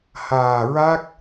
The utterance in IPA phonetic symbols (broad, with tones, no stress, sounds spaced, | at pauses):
h aː˨˩ ɹ a˦˥ k̚